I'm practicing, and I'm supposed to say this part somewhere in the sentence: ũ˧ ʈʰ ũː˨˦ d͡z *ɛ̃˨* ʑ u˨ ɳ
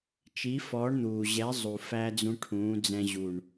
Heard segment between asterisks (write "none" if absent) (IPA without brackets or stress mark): ɛ̃˧